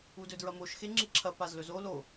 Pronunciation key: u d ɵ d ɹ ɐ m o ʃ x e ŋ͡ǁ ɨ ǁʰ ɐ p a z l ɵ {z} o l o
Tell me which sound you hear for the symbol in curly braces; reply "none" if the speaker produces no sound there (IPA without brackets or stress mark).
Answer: z